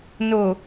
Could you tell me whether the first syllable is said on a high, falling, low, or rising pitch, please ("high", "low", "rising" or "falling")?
low